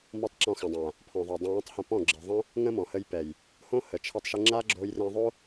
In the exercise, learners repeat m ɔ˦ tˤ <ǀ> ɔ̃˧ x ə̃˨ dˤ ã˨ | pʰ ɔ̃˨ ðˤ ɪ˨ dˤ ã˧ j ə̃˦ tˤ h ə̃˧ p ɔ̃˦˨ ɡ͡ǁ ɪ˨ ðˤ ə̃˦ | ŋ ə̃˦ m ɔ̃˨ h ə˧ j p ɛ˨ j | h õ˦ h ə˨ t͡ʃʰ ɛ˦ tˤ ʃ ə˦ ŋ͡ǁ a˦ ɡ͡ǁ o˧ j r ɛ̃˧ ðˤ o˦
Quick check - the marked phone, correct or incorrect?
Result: incorrect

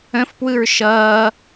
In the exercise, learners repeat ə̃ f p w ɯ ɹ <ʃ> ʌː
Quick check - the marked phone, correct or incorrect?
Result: correct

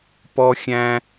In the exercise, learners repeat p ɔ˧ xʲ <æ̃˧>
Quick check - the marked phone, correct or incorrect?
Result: correct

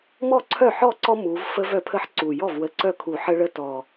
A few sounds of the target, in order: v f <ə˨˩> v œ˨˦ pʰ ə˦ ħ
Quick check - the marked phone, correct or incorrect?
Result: incorrect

